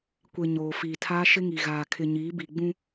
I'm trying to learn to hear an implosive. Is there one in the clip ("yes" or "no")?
no